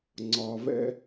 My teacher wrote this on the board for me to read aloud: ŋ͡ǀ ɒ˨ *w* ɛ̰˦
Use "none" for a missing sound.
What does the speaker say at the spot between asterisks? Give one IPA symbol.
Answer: v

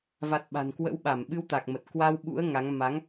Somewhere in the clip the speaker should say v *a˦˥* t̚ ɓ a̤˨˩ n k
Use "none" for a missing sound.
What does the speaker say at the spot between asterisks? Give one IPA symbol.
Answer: a˨˩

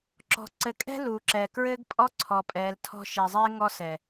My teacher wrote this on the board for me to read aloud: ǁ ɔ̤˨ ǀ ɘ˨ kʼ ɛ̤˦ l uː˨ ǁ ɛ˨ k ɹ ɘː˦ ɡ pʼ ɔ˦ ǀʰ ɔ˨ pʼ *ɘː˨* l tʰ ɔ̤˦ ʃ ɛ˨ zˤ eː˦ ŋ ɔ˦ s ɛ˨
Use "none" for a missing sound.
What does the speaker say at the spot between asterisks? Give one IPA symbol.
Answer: ɛː˨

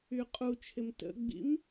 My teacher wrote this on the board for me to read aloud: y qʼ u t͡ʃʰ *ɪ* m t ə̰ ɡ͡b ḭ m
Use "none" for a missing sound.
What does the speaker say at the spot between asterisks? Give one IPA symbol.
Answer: ɪ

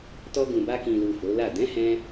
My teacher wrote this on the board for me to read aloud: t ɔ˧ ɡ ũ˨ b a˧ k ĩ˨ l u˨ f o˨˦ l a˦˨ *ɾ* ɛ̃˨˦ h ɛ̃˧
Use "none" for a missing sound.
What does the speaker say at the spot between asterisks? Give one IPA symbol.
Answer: d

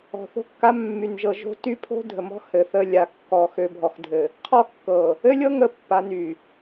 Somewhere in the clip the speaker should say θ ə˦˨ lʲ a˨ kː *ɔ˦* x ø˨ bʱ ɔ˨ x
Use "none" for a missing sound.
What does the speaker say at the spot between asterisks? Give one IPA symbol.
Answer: ɔ˨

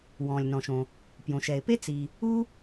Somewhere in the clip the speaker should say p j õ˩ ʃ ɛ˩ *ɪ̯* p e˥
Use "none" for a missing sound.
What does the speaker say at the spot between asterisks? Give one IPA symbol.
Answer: ɪ̯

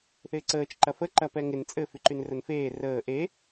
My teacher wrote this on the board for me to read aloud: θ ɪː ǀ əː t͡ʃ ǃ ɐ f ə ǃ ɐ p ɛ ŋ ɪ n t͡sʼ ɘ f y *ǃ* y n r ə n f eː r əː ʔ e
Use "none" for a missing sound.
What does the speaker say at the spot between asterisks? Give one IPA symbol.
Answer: ǃ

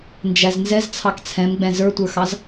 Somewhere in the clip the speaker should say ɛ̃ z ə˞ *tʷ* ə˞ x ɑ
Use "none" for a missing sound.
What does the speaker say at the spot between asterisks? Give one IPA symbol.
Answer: tʷ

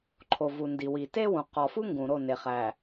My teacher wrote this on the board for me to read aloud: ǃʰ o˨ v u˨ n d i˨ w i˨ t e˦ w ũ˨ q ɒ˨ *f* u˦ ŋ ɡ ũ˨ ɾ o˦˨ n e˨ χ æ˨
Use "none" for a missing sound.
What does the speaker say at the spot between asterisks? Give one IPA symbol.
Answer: f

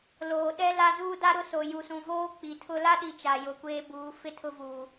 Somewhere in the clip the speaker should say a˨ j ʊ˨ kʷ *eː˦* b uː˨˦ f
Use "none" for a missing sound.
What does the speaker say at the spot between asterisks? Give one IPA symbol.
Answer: eː˦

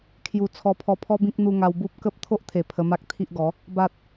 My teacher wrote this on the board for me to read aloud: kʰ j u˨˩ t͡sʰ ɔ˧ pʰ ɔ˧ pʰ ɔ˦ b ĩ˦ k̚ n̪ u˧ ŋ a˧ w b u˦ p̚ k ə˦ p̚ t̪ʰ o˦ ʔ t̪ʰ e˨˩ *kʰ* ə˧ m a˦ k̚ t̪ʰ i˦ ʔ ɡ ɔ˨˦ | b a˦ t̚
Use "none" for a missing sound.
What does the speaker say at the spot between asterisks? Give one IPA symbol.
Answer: pʰ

